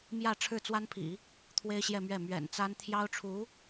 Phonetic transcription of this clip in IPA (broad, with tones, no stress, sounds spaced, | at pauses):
m j ä˥˧ ʈ͡ʂʰ ɻ̩˥˩ t͡s w a˥ n pʰ ḭ˨˩˦ | t̪ʰ w e˥ ɪ̯ ɕ j ɛ˥˧ m ɥ ɛ˥˩ m ɥ ɛ̰˨˩ n t͡s a˥ n t̪ʰ j ɑ˥ ʊ̯ ʈ͡ʂʰ u˧˥